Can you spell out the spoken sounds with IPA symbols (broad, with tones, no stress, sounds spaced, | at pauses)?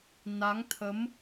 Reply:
n a˨˦ ŋ t̪ʰ ə˨˦ m